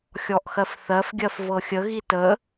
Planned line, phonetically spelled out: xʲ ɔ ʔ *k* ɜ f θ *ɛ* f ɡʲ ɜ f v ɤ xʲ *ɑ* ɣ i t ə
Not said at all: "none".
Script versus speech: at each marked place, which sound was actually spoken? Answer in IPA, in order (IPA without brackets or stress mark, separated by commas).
x, ɜ, ə